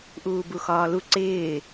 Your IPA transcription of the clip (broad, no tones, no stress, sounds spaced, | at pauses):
ʔ uː b u x ɒː l u ǀ ɪː